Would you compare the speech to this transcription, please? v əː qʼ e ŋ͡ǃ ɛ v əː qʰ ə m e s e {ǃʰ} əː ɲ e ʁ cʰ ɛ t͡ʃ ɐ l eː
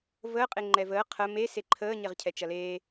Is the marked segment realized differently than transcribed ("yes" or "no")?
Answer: no